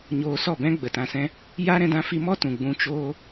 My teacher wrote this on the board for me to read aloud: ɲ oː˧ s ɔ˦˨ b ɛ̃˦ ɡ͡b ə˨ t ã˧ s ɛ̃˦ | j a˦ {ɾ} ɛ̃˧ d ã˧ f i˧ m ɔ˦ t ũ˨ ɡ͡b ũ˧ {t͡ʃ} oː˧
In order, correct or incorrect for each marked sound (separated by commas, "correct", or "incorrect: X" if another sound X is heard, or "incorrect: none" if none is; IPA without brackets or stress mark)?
correct, correct